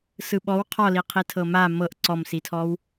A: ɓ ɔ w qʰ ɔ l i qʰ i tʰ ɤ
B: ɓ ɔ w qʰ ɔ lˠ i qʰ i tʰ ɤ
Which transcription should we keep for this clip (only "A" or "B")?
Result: A